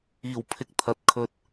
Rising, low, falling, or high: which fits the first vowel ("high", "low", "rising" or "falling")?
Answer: low